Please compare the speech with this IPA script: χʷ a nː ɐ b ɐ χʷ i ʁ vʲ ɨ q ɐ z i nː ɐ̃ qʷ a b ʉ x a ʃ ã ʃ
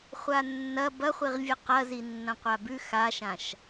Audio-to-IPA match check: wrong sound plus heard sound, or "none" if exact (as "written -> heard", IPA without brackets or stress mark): none